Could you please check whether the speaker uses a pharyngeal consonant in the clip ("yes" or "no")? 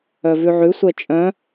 yes